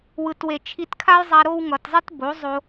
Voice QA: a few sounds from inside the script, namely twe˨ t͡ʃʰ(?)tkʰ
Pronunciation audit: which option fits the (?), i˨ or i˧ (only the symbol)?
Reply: i˧